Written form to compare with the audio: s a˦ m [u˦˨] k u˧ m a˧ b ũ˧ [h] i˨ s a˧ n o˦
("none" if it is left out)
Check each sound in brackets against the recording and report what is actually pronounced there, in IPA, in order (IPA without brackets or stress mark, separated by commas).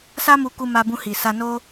u˧, h